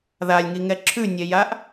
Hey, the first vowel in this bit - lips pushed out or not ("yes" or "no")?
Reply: no